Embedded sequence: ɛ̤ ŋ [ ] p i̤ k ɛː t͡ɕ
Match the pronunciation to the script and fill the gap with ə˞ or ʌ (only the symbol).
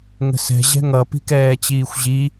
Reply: ʌ